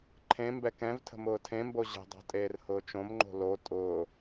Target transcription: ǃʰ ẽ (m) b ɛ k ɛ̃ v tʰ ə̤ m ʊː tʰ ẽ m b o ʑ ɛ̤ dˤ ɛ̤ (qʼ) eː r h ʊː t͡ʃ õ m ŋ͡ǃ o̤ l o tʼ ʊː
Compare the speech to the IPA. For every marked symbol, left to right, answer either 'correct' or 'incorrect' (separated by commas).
correct, incorrect